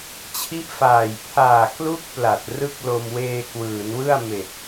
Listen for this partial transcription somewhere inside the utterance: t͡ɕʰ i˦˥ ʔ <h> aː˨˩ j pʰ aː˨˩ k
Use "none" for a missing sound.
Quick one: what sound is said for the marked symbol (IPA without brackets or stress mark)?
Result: f